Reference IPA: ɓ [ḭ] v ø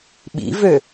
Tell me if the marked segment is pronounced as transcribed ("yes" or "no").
yes